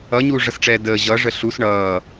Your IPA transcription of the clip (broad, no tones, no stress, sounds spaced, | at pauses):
ʌ ɲ uː ʐ ʌ s ʈ͡ʂ ɛː d əː ʑ ʌ ʐ ə ɬ u s ɳ ʌː